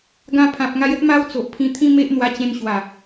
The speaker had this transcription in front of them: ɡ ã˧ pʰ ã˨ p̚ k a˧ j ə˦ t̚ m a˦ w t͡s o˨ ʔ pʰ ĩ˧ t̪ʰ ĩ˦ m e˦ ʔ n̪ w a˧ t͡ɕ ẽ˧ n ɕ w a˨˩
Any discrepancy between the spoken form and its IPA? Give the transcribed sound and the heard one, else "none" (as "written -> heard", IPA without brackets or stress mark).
k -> ŋ